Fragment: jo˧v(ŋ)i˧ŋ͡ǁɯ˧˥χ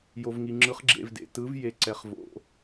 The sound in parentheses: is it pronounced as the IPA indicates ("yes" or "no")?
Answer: yes